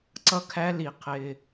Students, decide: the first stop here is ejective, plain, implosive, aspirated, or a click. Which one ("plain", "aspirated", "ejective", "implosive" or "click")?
click